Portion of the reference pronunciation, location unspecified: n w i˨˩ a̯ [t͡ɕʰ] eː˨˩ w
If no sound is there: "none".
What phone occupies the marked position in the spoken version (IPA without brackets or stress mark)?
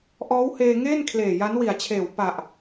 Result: t͡ɕʰ